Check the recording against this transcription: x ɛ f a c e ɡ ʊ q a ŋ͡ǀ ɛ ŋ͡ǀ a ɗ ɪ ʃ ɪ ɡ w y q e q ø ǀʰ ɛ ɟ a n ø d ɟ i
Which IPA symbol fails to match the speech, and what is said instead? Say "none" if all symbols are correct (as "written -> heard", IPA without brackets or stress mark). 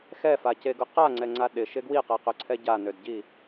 y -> i